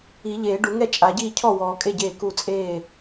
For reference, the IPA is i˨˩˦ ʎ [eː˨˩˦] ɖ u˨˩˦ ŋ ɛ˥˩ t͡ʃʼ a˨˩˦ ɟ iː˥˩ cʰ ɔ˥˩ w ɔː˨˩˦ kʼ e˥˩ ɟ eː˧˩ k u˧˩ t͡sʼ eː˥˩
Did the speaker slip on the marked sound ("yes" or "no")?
no